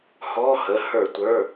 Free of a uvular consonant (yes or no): yes